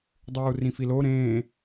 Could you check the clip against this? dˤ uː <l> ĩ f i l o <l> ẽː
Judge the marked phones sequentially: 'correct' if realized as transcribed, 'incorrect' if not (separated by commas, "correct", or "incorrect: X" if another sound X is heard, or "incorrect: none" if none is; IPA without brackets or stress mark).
incorrect: r, incorrect: ɾ